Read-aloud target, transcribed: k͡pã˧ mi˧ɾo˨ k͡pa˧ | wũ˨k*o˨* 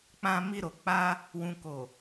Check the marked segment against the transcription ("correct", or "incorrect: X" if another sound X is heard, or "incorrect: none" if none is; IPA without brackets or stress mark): correct